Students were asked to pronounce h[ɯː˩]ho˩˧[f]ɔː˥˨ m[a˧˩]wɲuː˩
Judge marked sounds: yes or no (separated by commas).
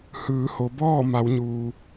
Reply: no, no, no